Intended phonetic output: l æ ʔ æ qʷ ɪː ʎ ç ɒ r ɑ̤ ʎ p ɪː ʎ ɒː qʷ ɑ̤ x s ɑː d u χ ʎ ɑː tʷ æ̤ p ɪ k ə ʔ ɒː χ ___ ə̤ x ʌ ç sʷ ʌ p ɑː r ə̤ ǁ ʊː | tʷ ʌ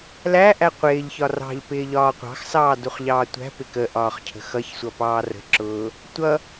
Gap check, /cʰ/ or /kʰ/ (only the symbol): cʰ